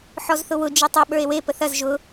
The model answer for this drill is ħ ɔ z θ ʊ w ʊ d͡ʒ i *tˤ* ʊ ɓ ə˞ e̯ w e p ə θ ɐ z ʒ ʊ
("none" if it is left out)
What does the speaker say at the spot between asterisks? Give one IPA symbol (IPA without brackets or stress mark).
tˤ